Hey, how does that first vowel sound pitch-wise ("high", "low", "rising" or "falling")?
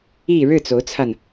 falling